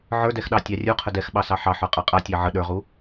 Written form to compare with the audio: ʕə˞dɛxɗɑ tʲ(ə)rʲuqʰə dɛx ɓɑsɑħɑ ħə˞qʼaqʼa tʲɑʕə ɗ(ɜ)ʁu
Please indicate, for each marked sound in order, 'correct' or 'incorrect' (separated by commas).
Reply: incorrect, incorrect